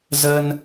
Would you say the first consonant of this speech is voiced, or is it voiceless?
voiced